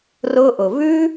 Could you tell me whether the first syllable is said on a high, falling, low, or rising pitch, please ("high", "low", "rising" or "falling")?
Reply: high